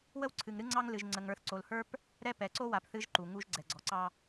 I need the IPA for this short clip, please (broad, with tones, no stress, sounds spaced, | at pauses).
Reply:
w ə˦ w ǀʰ ɨ˨ ŋ ɾ ɨ˦ ŋ͡ǀ ɑ˦ ŋ l ɨ˨ ʒ ŋ͡ǀ ə˨ ŋ ə˞˨ θ ǀ o˨ l h ə˞˦ p | ɾ ɛ˦ p ɛ˨ ǀ o˦ w a˨ p θ ɨ˦ ʒ ǃ u˨ ŋ u˦ ʒ ɡ͡ǀ ɛ˨ ɡ͡ǀ ɔ˨ ǀ ɑ˦